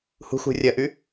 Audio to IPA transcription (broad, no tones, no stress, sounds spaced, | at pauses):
h ṳ x ṳ rʲ ɐ ʔ y